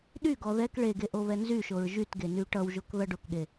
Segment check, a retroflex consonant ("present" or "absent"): present